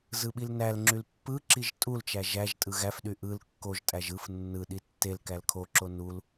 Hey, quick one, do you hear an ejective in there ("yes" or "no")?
yes